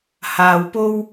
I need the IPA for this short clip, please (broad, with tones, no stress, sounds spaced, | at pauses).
h aː˧ w p o˥ w